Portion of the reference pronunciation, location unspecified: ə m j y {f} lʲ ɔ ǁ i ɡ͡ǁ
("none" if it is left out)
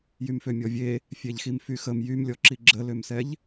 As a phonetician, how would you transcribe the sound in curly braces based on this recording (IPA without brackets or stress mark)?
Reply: m